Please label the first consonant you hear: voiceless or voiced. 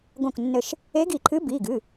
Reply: voiced